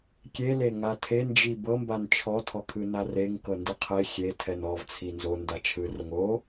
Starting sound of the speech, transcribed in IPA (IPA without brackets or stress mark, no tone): kʲ